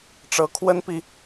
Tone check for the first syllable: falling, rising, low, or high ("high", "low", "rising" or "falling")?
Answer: rising